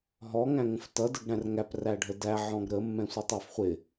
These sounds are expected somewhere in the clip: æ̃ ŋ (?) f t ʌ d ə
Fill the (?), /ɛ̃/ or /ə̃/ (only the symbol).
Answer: ə̃